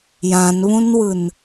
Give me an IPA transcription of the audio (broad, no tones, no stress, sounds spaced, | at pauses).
j ã n β ũ n w ɯ n